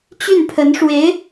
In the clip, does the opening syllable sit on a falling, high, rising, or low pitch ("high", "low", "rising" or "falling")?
falling